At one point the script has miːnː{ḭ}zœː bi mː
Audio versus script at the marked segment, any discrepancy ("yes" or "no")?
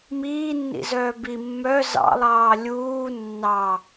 no